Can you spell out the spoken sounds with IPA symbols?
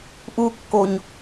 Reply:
ʔukːoɲ

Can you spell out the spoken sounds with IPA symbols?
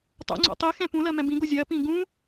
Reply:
tˤo̰ ŋ͡ǀo̰tˤi xɛ̃pũlɜmɛ̃ bĩɡo zʲɜ pĩɡũ

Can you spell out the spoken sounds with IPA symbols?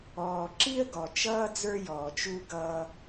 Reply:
ɔː˨ǁi˦ə̯ɡɔ˨t͡ʃʌː˦ d͡zə˞˦jɔː˨t͡ʃ u˦ɡʌː˦

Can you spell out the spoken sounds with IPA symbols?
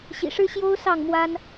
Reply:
ɕḭ˨˩ʂɻ̩˦ɕjo˦ʊ̯ sɑ˥˨ŋmwa˦n

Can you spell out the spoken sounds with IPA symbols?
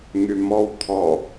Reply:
ŋymɔw t̪ʰɔ

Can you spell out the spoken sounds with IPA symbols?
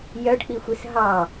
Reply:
jœɖk͡pixʷis ɦɑ

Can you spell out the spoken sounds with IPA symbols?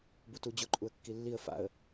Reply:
butud͡ʑʊ ǃʼuə̯kːilːiə̯ fa̰ə̯

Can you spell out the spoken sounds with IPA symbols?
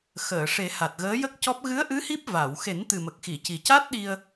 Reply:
xəː˨˩˨ʂe˨˩˦ha˨˩t̚ ɣəː˧˥jə˦˥k̚cɔ˦˥p̚ ɣɨ˧˥ə̯ʔɨ˧˥ hi˦˥p̚va˨˩˨w xe˨˩˦nt̪ɨ˨˩mə˨˩k̚xi˨˩˨ ci˨˩ca˦˥t̚ɗi˧ə̯

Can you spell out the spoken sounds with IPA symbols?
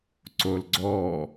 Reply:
ǀolɡ͡ǀɔ

